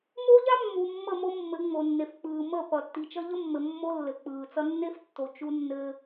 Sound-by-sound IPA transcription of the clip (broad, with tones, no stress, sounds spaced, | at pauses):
m o˦ ʎ a˦ mː u˨ mː ə˦˨ m o˦ mː ɘ˨˦ ŋ͡m o˨ nː e˨ f k͡p ɯː˨ m ə˦˨ p ʌ˨ tː i˨ t͡ʃ ʌ˦ ʎ ə˦ mː ɘ˨ mː o˦ lː ɘ˨ k͡p ɯː˨ t͡s ʌ˦ nː e˦ f tː o˨ t͡ʃ u˦ nː ɘː˦